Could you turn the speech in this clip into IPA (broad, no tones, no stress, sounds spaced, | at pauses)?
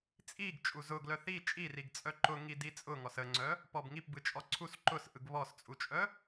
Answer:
t͡sʼ i ɡ t͡ʃʼ u z ʊ ɡ l œ θ i t͡ʃʼ i r i ɡ t͡sʼ œ ǃ ʊ ŋ i d i t͡sʼ ʊ ŋ ɔ s ə ŋ͡ǀ œ | p ɔ b ŋ i p b ɯ t͡ʃʼ ɔ ǀʰ u s ǃ ʊ s ʔ ɯ ɡ β ɔ s t͡sʼ u t͡ʃʼ œ